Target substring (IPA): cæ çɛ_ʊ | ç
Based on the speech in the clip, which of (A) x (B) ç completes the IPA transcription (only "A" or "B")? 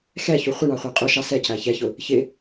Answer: B